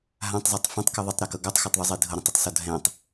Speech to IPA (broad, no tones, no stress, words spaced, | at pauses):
ɦãtˤzˤatˤ fãtˤkɤ ðˤitˤɾakɤ ɡɔtˤxɔtˤðˤuzˤi dʱɤɾɛ̃tˤutˤsɔ dʱɛ̃tˤ